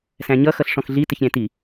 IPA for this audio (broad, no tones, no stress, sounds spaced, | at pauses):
s æ̃ ɲ ʌ x ʌ ɬ ʂ ɔ̃ x ɮ i t ɪ ç ɾʲ æ̃ t i